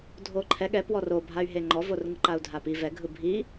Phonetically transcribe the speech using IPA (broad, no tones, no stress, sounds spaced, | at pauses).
dʱ o ǃʰ ɛ ɠ ɛ p w ɔ r o bʱ a y̯ ɦ e ŋ͡ǃ ɔ v o r ŋ ɯ ǃ a u̯ dʱ a p i v ɛ ɡʱ ɯ bʱ i